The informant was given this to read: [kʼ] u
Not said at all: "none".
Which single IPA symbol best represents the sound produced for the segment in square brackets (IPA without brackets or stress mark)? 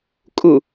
kʼ